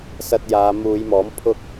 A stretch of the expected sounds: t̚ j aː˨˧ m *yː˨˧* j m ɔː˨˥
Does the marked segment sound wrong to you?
yes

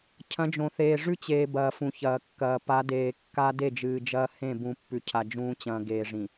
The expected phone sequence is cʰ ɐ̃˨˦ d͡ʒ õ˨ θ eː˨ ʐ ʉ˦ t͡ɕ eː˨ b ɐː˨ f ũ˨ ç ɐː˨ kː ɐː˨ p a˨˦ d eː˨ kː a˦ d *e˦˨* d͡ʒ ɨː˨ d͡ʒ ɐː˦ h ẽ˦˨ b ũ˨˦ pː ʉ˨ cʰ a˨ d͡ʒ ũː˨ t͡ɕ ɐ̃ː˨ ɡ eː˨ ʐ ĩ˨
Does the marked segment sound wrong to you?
no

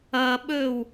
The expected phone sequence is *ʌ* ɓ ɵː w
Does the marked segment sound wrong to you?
no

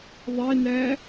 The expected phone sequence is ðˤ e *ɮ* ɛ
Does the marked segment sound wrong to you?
yes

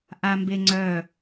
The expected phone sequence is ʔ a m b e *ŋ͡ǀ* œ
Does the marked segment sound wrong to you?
no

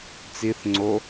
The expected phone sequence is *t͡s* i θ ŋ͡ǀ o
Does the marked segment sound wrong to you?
no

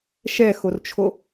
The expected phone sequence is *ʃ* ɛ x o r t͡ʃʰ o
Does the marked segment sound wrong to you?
no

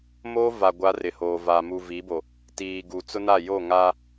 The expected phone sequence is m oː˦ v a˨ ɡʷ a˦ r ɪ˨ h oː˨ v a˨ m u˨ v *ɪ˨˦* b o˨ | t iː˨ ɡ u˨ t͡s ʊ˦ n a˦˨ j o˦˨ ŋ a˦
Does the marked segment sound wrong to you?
yes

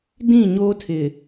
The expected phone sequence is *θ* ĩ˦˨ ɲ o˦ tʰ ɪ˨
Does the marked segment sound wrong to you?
yes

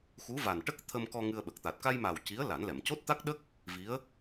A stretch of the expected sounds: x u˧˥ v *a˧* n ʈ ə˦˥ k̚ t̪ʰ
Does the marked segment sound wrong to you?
yes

